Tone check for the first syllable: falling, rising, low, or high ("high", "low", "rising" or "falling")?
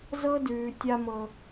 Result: high